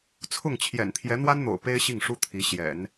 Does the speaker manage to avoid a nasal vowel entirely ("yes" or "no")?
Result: yes